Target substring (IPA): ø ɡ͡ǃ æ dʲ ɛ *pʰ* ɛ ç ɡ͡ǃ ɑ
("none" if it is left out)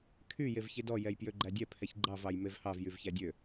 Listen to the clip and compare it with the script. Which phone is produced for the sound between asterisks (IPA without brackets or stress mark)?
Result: pʰ